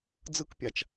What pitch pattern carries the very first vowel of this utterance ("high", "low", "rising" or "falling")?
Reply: high